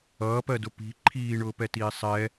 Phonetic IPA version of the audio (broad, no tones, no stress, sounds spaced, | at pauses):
ʌː p ɜ d ʊ p i̤ ǃʰ iː ɳ ʊː p ɛ t iː sˤ ɛ